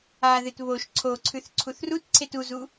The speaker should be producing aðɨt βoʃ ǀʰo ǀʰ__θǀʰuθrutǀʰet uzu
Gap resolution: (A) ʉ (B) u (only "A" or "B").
A